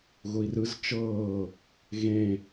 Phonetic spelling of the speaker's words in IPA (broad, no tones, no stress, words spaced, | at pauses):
ɣʊi̯rɯz t͡ʃɤː | ɣẽ